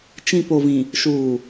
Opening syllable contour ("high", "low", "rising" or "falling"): low